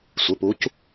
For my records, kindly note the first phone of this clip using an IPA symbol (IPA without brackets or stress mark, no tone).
sʷ